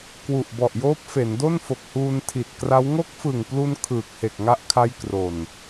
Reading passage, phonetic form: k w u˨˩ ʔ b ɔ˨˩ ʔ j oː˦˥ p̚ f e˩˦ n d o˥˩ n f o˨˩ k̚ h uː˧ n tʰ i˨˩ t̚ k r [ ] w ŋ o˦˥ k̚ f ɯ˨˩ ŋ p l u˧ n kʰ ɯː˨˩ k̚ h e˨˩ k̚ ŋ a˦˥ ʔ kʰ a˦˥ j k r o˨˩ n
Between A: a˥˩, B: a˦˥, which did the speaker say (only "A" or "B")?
B